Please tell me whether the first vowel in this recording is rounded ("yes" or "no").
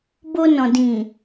yes